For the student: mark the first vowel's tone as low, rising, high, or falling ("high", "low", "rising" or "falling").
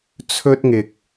high